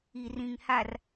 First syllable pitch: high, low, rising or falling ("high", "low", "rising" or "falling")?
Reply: low